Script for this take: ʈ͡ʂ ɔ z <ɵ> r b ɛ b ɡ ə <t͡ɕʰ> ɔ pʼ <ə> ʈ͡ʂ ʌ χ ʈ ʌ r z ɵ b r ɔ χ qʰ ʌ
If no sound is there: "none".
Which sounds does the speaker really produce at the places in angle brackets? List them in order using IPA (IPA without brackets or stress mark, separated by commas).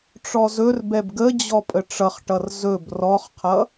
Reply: ɵ, d͡ʑ, ə